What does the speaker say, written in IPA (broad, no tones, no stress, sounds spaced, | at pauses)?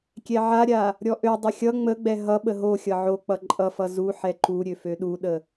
kʲ ɛ ʕ a ɾʲ a | ɾʲ ɔ ʔ ø dˤ ə xʲ ʌ ŋ͡m ə ɡ͡b ɛ ɦ ʌ ɓ ə ɦ o xʲ ʌ ʕ o k͡p ʌ ǃʼ ʌ f ʌ z u ħ ɛ ǃ u ɾʲ ø f ø ɗ u ɗ ə